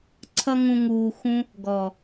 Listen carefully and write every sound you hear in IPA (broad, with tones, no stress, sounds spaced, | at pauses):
ǀʰ ʌ˦ ŋ ũ˧ ŋ uː˧ x ũ˦ | ɡ ɔ˨